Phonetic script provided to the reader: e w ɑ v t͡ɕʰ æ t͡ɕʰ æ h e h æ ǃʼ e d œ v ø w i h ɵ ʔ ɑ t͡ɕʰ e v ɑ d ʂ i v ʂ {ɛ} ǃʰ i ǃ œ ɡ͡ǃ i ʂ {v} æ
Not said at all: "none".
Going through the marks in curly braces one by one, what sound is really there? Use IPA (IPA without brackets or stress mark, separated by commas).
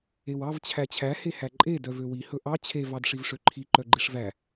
ø, v